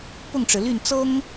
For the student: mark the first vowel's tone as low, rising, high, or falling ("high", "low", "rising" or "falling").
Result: falling